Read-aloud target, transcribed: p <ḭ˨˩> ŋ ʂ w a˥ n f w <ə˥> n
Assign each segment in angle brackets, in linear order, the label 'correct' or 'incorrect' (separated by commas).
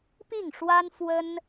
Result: incorrect, correct